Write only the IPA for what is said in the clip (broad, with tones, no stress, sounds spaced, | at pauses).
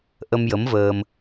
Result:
ʔ ə˧ m j ə˧˥ m v əː˧ m